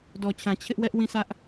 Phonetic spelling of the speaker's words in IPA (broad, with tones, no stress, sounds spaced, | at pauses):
d ɔ˨ t͡ɕʰ ã˨ t͡ɕʰ ɪ˦ ʔ w ɛ˦ ʔ w ĩ˦˨ s ä˦ ʔ